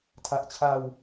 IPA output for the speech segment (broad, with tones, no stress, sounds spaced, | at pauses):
tʰ a˨˩ ʔ t͡ɕʰ a˧ w